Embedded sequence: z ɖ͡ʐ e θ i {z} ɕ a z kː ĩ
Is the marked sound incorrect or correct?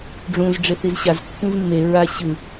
correct